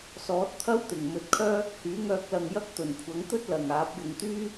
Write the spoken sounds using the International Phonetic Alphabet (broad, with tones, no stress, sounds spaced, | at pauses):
s ɔː˨˥ t̚ t̪ʰ ɐ˥ w t̪ ɪ˨˩ ŋ m ɵ˨ t̚ kʰ œː˥ | h yː˨˥ ŋ œː˧ k̚ l ɐ˨ ŋ j ɐ˥ k̚ t̪ ɵ˨˩ n kʷʰ ɐ˨˥ ŋ t̪ ɵ˥ t̚ l ɐ˨ ŋ aː˨˥ p̚ j ʊ˧ ŋ t̪ yː˥